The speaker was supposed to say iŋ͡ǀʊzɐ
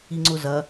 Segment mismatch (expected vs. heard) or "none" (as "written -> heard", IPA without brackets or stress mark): none